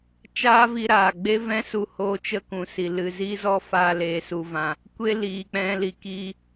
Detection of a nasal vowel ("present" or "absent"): present